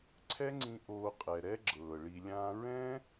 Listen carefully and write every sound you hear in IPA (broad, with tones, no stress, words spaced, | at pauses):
ǀʰɛ˦ŋ͡ǀĩ˧ ʔoː˧qʼɛ˨ɾɛ˦ ɡ͡ǁɤː˨ɭi˧lʲãː˦ ɹɛ̃ː˦